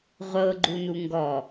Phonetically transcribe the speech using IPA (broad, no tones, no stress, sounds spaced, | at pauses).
ʁʷ ɤ ɡ͡ǃ u n u ŋ ɡ ɔ